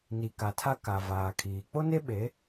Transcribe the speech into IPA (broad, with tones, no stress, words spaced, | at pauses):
ni˨ka˨tʰa˦ ka˨vaː˨kʰiː˨ k͡po˦ne˦ ɓe˨˦